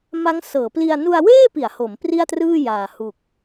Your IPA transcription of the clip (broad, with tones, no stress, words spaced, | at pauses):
ma˦˥ŋsɤː˩˦pli˧a̯ nu˧a̯weː˥˩pi˩˦a̯ ho˩˦m pri˥˩a̯trɯː˥˩jaː˨˩ hu˨˩k̚